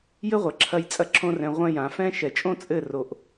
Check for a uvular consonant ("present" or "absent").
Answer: present